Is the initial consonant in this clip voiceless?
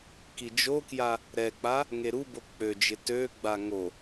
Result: yes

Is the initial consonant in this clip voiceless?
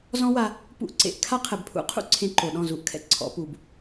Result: no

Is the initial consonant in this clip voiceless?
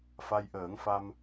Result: yes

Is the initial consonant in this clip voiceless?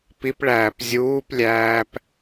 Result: yes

